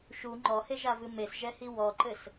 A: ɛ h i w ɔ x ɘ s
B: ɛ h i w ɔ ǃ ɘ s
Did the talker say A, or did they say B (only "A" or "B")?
B